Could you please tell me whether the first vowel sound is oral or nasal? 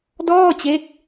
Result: oral